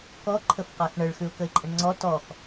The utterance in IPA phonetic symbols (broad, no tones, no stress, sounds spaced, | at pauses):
k ɔ ǃʰ ə f q a x ɳ ə ɭ x ʉ ʊ̯ k ə ɪ̯ ǃʼ ə ɳ ŋ͡ǀ ɔ t ɔ x